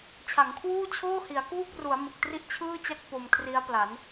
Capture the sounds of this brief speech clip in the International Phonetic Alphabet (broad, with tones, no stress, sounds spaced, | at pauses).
t͡ɕʰ a˩˦ ŋ kʰ w uː˥˩ t͡ɕʰ oː˥˩ h i˩˦ a̯ k uː˥˩ k̚ r u˩˦ a̯ m ɯ˨˩ k̚ t r i˥˩ ʔ t͡ɕʰ ɯː˥˩ t͡ɕ a˥˩ k̚ p o˧ m kʰ r i˦˥ a̯ p l a˩˦ n